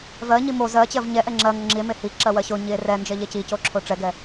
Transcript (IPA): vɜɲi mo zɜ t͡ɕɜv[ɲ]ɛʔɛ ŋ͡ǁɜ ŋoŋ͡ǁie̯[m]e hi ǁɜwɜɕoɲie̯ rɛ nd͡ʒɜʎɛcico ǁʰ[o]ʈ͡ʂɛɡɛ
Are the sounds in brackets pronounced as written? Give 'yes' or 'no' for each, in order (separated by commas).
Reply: yes, yes, yes